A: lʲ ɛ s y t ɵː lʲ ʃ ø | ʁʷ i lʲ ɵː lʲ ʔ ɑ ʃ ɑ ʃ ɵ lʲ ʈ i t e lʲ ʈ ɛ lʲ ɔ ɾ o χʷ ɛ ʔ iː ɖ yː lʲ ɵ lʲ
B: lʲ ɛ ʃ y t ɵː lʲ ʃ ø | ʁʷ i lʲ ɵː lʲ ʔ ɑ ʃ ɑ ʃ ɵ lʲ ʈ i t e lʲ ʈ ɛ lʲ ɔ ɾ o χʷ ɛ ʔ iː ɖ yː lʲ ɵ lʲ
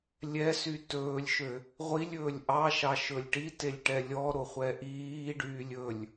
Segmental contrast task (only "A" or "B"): A